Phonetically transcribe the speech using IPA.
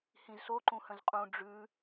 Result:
hĩzso ǃũhə̃zqʼũ ɖ͡ʐʉ

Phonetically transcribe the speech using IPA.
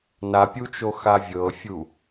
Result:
napʲut͡ʃoxa vʲɤfʲu

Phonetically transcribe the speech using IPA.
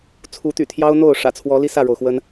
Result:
t͡sʰu˨˦t̪y̰˨˩t̪ʰjɑ˦ʊ̯ n̪o˥˨ʊ̯ʂä̰˨˩t͡sʰwɔ˨˦ li˦sä˥˨ɻo˩ʊ̯xwə˦n

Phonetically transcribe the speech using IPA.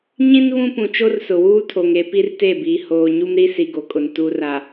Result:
ɲĩ˦n βũ˦ pũ˨t͡ʃo˦r sʊ˨wuː˦tʰo˨ŋe˦ pi˦rte˦˨biː˨ hoː˨ɲu˦m ɾi˦si˨ɡo˨kʼʊ˨n tu˨ra˨

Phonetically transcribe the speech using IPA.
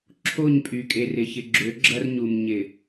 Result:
ǁʰo˦˨ɲpʼy˨kʼe˨rɪ˨ çɪ˨ɡ͡ǁø˨˦ɡ͡ǁɐ˦r ɲu˨m ɲɪ˨

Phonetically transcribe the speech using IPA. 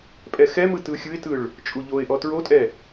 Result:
pʼɛxɛmɯ tɯxʲɯɪ̯tɯɭ | t͡ʃʼuʎoɪ̯ʔɔ tɹotʼɛ

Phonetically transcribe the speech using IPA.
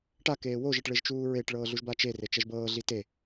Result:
ʈa keːwoʒeʈ ɭeʒt͡ʃuːɹeʈɭɤː ɮuʒbat͡ʃere t͡ʃɛʒbɤːɮi te

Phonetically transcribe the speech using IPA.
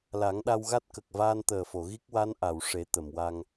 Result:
la˨˩˦ŋɗa˧wɣa˦˥t̚ kə˨˩k̚vaː˧nt̪əː˨˩fo˨˩˨ ɣi˦˥k̚wa˧˥nʔa˨˩˨w ʂe˨˩˦ t̪ə˨˩˨mwa˧ŋ

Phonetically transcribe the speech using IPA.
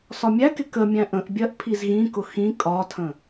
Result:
sɒmʲækɪ kəmʲæ̃ ʔə̃ʔbʲɜʔ pʰizɣĩkʊ xĩ kʼɒtʰə̃

